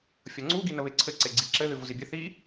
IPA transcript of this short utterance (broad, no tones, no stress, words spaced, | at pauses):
fʲʌŋ͡ǀu ɡinəβeǀʰɘ ǀeɡ͡ǀiǁɘ ðɨvuzibʲɘ θi